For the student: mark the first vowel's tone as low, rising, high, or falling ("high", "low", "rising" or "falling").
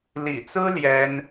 low